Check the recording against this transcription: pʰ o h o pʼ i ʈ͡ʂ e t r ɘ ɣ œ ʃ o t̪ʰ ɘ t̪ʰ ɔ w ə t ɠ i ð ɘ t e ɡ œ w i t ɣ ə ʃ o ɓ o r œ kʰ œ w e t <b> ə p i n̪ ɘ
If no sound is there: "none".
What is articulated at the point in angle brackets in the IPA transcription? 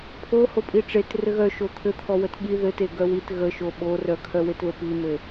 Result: β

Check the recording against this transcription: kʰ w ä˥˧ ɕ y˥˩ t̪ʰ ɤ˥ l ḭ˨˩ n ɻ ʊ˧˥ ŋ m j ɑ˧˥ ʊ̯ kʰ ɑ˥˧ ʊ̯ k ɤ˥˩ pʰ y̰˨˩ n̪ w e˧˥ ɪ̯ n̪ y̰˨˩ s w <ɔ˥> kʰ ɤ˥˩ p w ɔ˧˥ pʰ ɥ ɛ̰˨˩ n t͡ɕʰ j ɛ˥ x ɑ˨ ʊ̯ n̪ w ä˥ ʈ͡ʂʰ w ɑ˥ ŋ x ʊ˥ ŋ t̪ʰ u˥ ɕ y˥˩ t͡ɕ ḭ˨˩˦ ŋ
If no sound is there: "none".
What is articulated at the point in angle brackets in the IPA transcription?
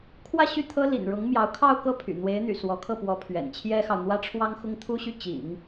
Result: ɔ˧˥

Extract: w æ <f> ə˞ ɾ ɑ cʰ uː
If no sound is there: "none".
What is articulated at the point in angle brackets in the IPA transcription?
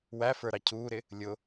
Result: f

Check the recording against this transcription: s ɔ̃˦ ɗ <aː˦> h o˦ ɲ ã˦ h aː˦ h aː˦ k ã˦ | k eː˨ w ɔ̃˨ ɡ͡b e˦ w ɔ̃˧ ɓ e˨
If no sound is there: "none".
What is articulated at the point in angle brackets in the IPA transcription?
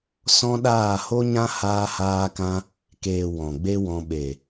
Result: aː˦˨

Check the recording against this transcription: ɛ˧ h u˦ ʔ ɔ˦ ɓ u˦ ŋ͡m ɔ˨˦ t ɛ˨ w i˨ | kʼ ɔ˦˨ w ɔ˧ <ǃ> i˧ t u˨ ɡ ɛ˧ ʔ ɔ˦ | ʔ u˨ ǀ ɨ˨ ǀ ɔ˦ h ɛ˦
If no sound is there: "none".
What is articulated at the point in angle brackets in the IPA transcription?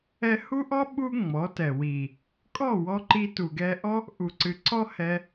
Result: ǃ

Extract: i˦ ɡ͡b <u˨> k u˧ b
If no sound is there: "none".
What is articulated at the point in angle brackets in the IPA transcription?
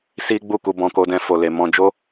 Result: u˦˨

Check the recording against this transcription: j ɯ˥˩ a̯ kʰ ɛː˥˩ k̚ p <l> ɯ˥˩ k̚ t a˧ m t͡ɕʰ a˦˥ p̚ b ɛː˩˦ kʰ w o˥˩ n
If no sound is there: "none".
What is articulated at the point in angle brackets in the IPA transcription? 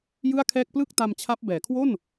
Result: l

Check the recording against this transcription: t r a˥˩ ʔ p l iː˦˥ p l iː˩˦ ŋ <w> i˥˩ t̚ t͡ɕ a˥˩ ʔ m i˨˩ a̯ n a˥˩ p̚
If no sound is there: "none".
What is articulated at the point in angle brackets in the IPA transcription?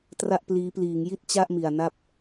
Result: j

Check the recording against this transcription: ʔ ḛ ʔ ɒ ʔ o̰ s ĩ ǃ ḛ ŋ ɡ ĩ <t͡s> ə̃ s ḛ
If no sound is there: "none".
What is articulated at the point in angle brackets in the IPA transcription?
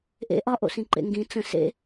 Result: t͡s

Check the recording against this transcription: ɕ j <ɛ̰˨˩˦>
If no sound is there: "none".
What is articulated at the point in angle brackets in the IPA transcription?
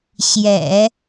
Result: ɛ̰˨˩˦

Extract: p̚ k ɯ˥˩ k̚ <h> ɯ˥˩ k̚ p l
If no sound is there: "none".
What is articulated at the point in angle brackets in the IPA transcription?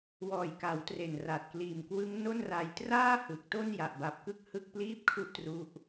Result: h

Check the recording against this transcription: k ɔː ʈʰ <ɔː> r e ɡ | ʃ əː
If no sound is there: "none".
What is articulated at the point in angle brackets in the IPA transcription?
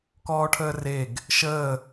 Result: əː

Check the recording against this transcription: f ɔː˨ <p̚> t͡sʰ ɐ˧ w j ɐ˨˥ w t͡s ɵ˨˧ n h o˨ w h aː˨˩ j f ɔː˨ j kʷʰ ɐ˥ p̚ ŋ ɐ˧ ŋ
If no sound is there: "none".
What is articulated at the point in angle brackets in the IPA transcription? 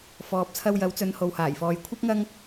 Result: p̚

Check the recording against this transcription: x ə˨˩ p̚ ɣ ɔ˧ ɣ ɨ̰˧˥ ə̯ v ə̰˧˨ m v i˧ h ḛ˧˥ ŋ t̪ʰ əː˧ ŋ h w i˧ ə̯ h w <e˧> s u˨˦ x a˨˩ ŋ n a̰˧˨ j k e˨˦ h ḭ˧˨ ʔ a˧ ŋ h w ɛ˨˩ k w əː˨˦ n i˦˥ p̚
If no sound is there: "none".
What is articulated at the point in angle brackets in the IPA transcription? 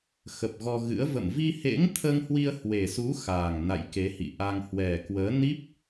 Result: e˨˩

